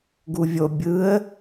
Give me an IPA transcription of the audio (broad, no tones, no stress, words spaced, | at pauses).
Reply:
ɡuvʲo bʲɯə̯